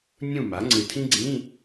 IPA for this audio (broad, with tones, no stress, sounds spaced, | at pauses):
nʲ ũ˥˨ m a˩˥ ŋ͡ǀ ɨ˨˩ tʰ ĩ˥ ɡ͡ǀ ĩ˧˥˧